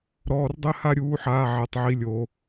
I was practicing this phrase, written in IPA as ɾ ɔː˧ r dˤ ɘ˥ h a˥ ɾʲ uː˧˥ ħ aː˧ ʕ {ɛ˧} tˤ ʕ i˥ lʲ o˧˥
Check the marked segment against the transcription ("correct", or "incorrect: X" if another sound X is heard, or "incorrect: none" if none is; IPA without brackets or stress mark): correct